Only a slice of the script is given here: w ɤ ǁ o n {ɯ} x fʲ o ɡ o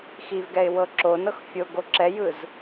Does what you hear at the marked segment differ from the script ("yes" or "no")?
yes